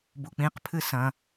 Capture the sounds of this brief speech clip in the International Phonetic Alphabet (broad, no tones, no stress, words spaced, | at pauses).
buk͡pĩq pʰɨsɐ̃